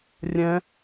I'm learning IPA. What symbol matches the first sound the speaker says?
rʲ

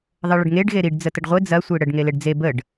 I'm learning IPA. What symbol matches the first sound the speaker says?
ðˤ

